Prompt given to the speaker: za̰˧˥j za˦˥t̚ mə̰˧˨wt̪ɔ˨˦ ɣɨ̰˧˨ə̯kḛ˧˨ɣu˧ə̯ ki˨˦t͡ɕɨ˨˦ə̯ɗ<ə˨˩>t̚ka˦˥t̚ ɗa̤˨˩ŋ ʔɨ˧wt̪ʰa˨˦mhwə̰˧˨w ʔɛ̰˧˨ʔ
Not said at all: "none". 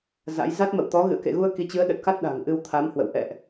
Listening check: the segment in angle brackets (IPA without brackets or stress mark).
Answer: ə˨˩